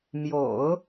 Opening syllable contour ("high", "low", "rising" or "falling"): low